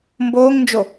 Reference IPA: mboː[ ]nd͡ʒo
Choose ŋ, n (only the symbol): ŋ